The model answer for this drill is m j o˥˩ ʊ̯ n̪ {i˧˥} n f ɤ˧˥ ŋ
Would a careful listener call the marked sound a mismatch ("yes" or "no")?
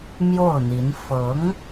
no